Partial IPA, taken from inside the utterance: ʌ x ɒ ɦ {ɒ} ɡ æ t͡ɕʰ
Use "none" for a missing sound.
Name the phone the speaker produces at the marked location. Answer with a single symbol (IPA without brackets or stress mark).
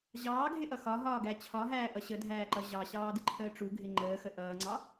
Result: ɒː